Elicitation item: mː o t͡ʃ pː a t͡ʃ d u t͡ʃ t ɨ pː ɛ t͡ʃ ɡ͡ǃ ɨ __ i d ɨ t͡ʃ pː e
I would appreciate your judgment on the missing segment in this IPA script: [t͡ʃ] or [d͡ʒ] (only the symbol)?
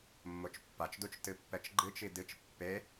t͡ʃ